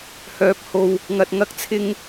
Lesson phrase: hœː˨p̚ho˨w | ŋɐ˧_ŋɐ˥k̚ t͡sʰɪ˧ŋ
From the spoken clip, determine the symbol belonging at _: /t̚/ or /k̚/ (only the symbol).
t̚